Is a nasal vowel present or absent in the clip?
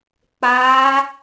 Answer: absent